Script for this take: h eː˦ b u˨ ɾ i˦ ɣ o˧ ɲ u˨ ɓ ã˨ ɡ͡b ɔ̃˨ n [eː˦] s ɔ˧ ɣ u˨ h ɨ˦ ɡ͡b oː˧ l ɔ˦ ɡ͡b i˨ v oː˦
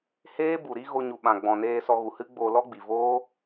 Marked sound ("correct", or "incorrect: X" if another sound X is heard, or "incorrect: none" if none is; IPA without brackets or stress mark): incorrect: eː˧